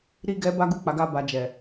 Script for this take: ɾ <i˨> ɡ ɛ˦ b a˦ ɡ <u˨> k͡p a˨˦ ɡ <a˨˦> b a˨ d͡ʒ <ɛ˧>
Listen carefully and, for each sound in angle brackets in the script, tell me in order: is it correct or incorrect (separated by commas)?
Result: incorrect, incorrect, incorrect, incorrect